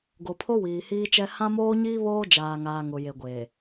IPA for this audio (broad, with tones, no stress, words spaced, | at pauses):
ɡo˨pʰo˦ wiː˨hiː˦t͡ʃɛ˦ hã˦moː˦ɲiː˦ βoː˦d͡ʒaː˨ŋaː˨ ŋʊ˨je˨ɡʷeː˨